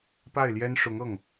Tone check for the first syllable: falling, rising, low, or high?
falling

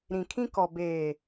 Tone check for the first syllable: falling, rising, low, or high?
low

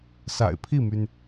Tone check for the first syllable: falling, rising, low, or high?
low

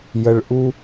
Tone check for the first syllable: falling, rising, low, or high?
low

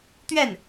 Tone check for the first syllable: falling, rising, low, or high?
falling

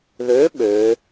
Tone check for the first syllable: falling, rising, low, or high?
rising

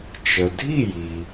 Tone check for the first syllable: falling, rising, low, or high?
low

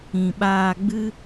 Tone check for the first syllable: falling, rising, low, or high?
low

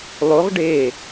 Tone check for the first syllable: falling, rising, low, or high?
rising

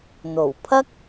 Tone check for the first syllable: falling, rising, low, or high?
low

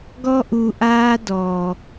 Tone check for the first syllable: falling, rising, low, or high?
high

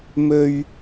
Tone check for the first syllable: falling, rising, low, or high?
low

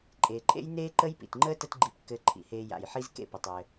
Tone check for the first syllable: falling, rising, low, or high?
low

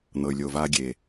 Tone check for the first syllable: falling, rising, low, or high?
low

